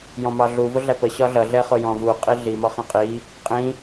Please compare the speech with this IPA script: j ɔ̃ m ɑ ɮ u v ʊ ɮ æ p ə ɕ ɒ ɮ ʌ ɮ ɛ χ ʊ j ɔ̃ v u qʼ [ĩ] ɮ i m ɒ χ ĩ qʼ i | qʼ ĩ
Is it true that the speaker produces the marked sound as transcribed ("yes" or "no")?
no